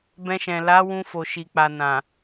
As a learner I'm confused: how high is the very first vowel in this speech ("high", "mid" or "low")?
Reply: mid